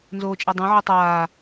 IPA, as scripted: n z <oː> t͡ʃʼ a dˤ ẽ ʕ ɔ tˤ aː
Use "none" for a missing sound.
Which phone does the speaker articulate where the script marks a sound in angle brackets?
oː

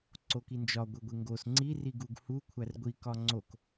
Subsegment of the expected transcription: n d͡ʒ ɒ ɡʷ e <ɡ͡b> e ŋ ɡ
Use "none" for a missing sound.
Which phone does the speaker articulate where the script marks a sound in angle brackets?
ɡʷ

